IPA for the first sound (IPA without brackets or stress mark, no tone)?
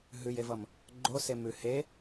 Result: ɦ